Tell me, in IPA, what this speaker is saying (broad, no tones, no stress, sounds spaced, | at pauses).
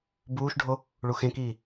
b uː ʃ ɖʱ o | ɭ u x ẽ k iː